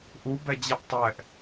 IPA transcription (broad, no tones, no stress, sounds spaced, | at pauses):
ʔ u b ɛ d͡ʑ ɛ ʔ tˤ ɛ ʔ